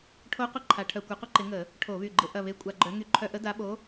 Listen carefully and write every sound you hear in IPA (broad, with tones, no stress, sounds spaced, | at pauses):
ʈʰ o˦˥ qʷ ɪ˦˥ ǃʰ a˨˦ ʈʰ œ˧˩˧ kʷ œ˨˦ qʷ ɪ˦˥ ǃ ɪ˨˦ ŋ ə˧˩˧ | ʈʰ o˧˩˧ β y˧˩ ɡ͡ǃ ɪ˧˩˧ ʔ ɐ˧˩ β e˨˦ kʷʼ a˧˩˧ ɡ͡ǃ œ˨˦ ŋ y˧˩ ǃʰ œ˧˩˧ ʔ ə˨˦ d a˨˦ ɓ o˨˦